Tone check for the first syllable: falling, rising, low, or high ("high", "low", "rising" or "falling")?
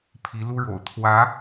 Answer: rising